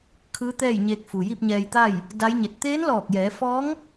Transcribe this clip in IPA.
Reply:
kʰɯː˧˥t̪ɛː˥˨jɲeː˧k̚ fu˩ji˥˨p̚ɲɛː˧jt̪a˥˨j | da˧˥jɲe˧˩t̚ t̪eː˧˥nlɔː˧˩k̚jɛː˩˧fɔː˧˥ŋ

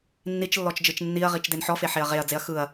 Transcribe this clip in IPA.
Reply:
nːit͡ʃlːɔt͡ʃ d͡ʒɯt͡ʃnːiɐ̯ʁit͡ʃ denħɔfe ħeɐ̯ʁeɐ̯d͡zeɐ̯ xɯɐ̯

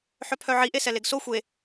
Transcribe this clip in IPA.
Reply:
ħœpʰœʕi ʔesɛleɡso xʷe

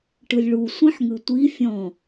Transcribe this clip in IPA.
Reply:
ʈɯlʲɭu sʷĩħŋɯtʷi fʲɔ̃

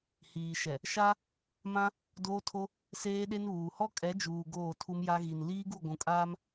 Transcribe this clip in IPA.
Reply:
hiː˨ʃɛ˨ | ʃa˦ | mã˦ | doː˦tʰo˦ | seː˦ɗe˦nβuː˨ hɔ˦kʼɛ˨˦ d͡ʒuː˨ ɡoː˦˨tʰu˦mja˦ ɣi˨n liː˦ɡu˦˨ɡʷũ˨ kʼaː˦m

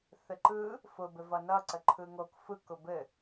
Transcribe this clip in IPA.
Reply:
θɘǃɯ | fʊ bɘvʌnʌǀə ǃʰɯŋok fɯkʊ bɘ

